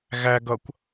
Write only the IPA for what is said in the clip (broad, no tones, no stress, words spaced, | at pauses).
ɣæ ɡʌkʷ